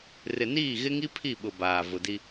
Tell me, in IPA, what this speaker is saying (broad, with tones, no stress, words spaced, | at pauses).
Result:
rɪ˨niː˦˨ ɣɪ˦ŋi˦ pʰi˦˨ɓʊ˨ baː˨ vʊ˨di˦